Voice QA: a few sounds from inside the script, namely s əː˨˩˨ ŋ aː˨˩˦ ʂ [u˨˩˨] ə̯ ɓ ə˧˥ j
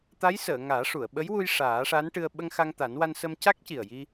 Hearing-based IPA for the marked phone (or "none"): u˨˩˨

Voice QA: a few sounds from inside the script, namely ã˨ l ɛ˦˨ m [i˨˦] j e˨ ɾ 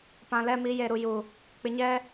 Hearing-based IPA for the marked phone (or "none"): i˨˦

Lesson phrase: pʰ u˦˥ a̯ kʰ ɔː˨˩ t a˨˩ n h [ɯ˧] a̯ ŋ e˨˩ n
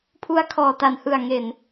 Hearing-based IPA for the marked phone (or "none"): ɯ˨˩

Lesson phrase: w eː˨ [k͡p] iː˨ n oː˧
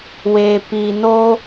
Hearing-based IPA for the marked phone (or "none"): p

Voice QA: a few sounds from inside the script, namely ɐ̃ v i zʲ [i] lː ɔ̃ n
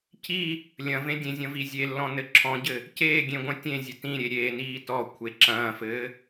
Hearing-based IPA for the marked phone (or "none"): e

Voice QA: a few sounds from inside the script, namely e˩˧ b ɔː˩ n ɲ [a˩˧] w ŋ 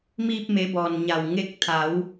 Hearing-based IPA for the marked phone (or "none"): a˧˩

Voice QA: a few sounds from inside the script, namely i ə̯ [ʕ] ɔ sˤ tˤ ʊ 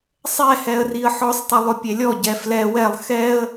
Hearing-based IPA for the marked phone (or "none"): ħ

